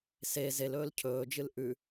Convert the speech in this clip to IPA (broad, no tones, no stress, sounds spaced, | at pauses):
s e z e l ɵː l cʰ ɵː d͡ʒ ɨ l ʔ ʉ